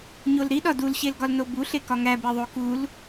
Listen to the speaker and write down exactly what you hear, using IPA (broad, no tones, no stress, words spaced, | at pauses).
ɲolɾiɗɒ dulɕelɡɒl nobuɬekɒ ŋæbeðˤo kul